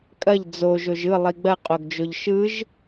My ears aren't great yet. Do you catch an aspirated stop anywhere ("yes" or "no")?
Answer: no